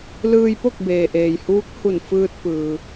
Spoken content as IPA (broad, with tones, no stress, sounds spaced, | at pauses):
l ɯː˧ j p o˥˨ k̚ b eː˩ ʔ eː˩ j h uː˧˥ k̚ h u˧˩ n f ɯː˧ t̚ p ɯː˩